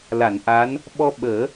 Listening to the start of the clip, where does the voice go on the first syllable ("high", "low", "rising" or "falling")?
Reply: low